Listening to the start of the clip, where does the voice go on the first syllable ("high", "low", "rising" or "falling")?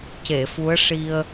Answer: low